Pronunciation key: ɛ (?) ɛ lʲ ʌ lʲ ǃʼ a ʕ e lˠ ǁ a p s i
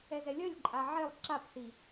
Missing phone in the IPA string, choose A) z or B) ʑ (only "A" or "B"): A